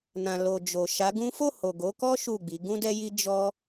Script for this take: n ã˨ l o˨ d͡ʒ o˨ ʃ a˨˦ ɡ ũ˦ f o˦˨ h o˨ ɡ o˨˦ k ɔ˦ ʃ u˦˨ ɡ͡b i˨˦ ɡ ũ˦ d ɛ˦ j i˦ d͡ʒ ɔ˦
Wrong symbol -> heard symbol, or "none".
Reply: none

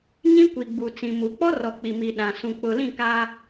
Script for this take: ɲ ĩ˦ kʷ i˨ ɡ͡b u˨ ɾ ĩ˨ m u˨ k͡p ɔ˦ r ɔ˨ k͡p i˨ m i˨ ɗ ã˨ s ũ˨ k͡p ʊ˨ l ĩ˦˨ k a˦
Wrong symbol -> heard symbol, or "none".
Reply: ɾ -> t͡s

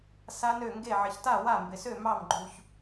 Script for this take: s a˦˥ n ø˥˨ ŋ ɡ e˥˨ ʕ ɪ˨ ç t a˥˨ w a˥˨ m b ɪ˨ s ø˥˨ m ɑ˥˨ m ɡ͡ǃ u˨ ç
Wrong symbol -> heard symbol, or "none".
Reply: none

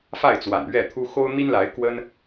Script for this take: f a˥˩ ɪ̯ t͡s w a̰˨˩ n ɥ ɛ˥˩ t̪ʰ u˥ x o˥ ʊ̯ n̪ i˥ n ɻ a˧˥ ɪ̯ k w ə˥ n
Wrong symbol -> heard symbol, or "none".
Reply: ɻ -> l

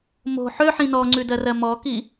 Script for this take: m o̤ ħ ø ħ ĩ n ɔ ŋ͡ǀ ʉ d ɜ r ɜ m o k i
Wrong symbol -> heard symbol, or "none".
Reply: o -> ɔ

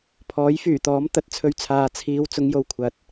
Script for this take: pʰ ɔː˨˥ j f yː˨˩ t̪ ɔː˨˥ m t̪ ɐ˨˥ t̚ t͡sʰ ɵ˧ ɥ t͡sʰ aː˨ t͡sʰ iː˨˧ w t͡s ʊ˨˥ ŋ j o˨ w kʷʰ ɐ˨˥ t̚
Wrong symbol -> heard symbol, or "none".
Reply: none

